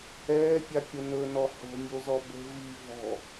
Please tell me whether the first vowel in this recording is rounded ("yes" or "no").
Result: no